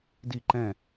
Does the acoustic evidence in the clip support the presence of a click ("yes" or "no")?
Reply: yes